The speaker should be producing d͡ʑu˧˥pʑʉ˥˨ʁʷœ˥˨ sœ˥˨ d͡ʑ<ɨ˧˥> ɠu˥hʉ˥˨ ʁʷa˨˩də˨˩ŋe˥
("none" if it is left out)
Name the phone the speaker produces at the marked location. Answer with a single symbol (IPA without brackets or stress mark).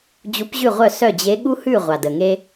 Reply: e˧˥